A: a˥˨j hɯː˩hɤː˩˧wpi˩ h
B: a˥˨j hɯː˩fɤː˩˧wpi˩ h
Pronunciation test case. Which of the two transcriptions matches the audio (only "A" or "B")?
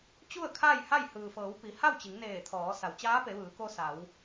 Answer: B